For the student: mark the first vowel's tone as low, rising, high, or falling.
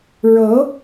rising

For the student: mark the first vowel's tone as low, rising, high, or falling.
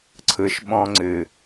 low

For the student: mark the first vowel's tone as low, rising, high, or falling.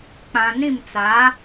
low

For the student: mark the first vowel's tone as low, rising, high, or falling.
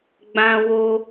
high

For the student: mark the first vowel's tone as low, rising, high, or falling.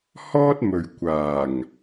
high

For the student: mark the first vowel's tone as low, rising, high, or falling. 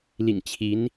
low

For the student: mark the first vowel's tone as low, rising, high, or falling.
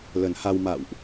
low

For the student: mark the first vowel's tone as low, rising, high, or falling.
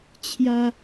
high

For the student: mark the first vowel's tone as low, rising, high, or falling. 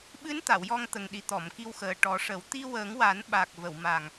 rising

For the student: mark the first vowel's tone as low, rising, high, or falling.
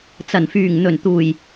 low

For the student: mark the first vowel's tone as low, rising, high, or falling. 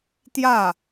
falling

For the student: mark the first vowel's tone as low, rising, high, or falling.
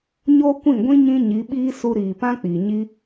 high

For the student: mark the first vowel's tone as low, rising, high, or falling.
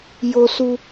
low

